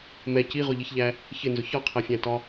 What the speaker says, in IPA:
m ɛ c i ʁ ʊ ʎ i ç ʎ æ | ç ɪ n z ʊ ç ɒ qʰ æ fʲ æ̃ t ɒ

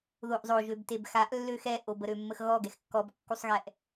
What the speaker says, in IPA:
ð o ʔ zˤ o ʒ ø b t e b x a ʔ lː ø x ɛ ʔ o b ə ɾ ø mː ə x ɣ ɔ ɡ ɛ x kː ɔ b kː u sˤ ɣ ɛ ʔ

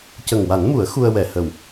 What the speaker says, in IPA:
c ə˨˩ ŋ w a˨˩˦ n m u˨˩˦ ə̯ x u˧ ə̯ w ɛ˨˩˨ h ə˨˩ w

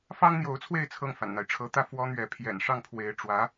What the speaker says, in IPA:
f ɑ˥ ŋ n̪ j o˧˥ ʊ̯ t͡sʰ w e˥˧ ɪ̯ t͡sʰ ɤ˥˩ ŋ f a̰˨˩ n n̪ a˦ ɪ̯ ʈ͡ʂʰ ɤ˧˥ t̪ ä˥˩ f w ɔ˥ n̪ ɥ ɛ˧˥ pʰ j ɛ̰˨˩ n ʂ ɑ˥˩ ŋ pʰ w e˧˥ ɪ̯ ʈ͡ʂ w ä˧˥

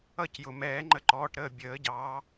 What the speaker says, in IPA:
ʌ˦˨ c j ʊ˩ m ɛː˨˩˦ ŋ͡ǃ ə˦˨ ǃ ɔː˩˧˩ ʈ ɾ əː˦˨ bʲ əː˨˩˦ ɟ ɑː˨˦

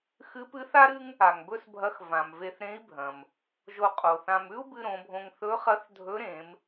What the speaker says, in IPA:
x ɨ˧˥ p ɨ˧˥ θ a˥ ɾ ɨ˥ ŋ | a˩ ŋ b ɵ˥ s bʱ ɐ˧˥ x v ã˩ m v e˧ θ ɾ ẽ˧˥ i̯ bʱ ɐ̃˩ m | ʒ o˧ qʼ o˩ θ ã˧ m ʉ˥ u̯ b ɨ˧ ɾ õ˩˧ bʱ õ˧ ŋ θ ɵ˧˥ χ ɐ˧˥ θ dʱ ɵ˧˥ ɾ ẽ˩˧ m

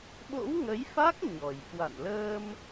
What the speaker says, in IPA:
ɓ o̰˧˥ w ŋ ə˨˦ j f a˦˥ k̚ ɲ ɔ˨˩ j k w a̰˧˨ n l əː˧ m

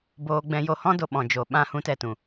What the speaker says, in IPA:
b oː˧ ɡ͡b ɛ̃˧ j o˧ h ɔ̃˦ d o˦ ɓ ɔ̃˧ d͡ʒ o˧ ɓ ã˧ h ũ˨˦ t ɛ˨ t ũ˨

